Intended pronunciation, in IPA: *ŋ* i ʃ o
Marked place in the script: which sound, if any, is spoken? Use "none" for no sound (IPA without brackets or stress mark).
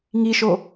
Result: ŋ